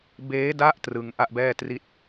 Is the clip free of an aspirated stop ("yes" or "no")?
yes